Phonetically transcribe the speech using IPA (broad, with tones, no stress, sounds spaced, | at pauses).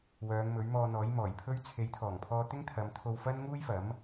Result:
w œː˨˧ ŋ m ɵ˨˥ ɥ m ɔː˧ n̪ ɔː˨˥ j m ɔː˨˩ j pʰ ɵ˥ ɥ t͡sʰ e˨˥ j t̪ʰ ɔː˨˩ ŋ pʰ ɔː˧ t̪ ɪ˥ ŋ t̪ʰ ɐ˨˧ m t̪ʰ o˧ w f ɐ˥ n ŋ uː˥ j f ɐ˨˥ m